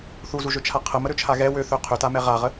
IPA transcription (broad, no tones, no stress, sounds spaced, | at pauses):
θ u z u ʒ ø t͡ʃʰ a qʰ ə m ə ɾ ø t͡ʃʰ a ɣ ɛ w ø θ ø qʰ ø t a m ɛ ʁ a ʁ ə